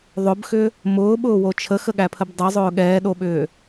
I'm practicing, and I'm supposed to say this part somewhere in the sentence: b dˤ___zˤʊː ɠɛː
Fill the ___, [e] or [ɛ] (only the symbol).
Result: ɛ